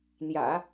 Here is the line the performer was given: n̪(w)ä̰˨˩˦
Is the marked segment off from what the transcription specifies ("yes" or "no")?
yes